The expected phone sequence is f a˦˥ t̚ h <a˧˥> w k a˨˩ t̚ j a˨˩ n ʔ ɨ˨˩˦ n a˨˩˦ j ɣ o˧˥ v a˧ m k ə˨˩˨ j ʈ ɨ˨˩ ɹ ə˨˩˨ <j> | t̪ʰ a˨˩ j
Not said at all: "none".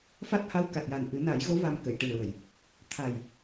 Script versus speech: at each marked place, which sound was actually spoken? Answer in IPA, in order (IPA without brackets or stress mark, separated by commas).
a˧˥, j